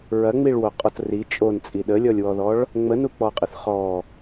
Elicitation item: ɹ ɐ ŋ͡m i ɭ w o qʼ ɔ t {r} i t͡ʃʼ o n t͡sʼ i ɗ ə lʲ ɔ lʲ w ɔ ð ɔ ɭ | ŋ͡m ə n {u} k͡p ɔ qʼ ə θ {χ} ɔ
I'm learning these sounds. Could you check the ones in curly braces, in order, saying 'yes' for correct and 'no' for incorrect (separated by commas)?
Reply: yes, yes, yes